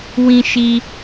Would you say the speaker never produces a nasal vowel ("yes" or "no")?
no